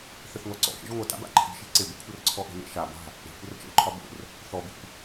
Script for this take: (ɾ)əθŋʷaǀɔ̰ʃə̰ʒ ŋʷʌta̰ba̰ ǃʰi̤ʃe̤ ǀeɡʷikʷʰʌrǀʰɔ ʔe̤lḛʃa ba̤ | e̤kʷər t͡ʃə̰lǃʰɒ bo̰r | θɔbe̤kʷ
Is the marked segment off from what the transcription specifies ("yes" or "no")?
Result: yes